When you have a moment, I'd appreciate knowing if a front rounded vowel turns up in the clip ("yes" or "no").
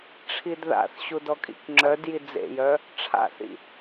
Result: yes